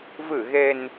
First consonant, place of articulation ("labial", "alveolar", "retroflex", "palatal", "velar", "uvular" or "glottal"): labial